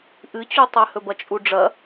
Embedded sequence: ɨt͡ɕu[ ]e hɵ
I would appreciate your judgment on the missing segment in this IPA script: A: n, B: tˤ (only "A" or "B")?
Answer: B